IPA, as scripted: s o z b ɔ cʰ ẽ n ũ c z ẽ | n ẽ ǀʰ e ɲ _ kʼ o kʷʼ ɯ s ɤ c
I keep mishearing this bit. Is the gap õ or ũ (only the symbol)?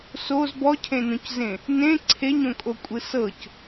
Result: õ